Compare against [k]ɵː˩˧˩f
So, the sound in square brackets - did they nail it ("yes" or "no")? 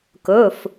yes